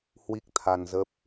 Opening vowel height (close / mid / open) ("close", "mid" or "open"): close